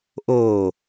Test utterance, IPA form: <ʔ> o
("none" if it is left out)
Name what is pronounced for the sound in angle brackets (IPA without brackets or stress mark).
ʔ